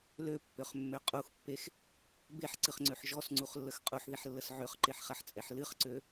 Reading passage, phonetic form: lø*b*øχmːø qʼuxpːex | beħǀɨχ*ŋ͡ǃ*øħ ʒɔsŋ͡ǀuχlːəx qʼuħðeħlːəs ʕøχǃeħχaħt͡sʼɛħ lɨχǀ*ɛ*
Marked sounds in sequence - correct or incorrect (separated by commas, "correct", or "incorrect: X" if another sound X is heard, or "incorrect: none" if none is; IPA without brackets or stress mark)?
incorrect: pː, incorrect: ŋ͡ǀ, incorrect: ø